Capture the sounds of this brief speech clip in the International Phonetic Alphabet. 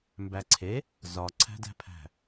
m b æ ǀʰ e | z ɒ ǀʰ æ̤ d æ̤ pʰ æ̤

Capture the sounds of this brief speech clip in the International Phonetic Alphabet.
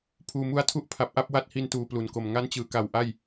pʰ uː˨˩ m u˧ a̯ tʰ u˦˥ ʔ pʰ a˨˩ p̚ ʔ a˥˩ p̚ w a˦˥ t̚ h i˧ n t uː˨˩ p l u˨˩ n k o˨˩ m ŋ a˦˥ n t͡ɕ ɯː˩˦ k a˨˩ w ʔ a˥˩ j

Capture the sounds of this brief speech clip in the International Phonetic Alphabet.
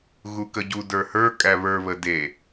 ɣ u k ə ɟ u d ə˞ h ə˞ kʼ æ β ə˞ β ə d e

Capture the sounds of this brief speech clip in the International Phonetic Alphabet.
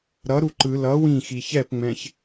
ɾ ʌ ɾ u ǃ ɯ l ʌ w ĩ x i ç ɛ p ŋ͡m ɛ̃ ç

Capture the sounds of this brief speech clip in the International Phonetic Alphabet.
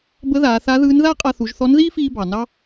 b ə˧˥ ð aː˩˧ θ a˧˥ ð ɯː˧˥ n ð aː˥ qʼ a˧ θ u˩˧ ʒ θ ɔ˧˥ n ð iː˥ f iː˧ b ɑ˩ n ɑ˥

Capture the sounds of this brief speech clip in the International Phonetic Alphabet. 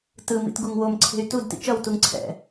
t ɯ m ḭ t ɡ u ŋ w o m ǀʰ e̤ y̯ t u d t ḭ t͡ʃ ʌ w t u ŋ ǀʰ ɛ̰

